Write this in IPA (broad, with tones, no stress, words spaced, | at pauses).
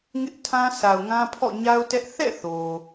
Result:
ŋɪ˦ʔtʰã˦sa˨ʊ̯ŋã˦ pʰɔ̰˦˨ɲa˦ʊ̯tɛ˦ʔ θɛ̰˦˨ θo˨